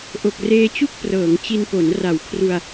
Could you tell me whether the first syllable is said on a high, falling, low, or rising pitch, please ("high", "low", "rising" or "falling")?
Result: low